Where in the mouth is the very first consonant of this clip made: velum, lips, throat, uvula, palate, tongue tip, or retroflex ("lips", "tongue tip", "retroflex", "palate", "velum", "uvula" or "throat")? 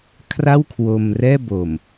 velum